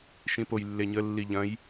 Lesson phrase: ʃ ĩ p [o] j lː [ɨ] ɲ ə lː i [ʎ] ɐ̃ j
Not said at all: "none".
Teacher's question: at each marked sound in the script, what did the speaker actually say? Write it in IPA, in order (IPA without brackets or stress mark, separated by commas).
o, e, ʎ